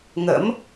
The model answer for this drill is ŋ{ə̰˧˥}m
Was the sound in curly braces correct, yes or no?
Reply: yes